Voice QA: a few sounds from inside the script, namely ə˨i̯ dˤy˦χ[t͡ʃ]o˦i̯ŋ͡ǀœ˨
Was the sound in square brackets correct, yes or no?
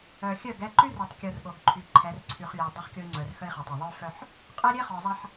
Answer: no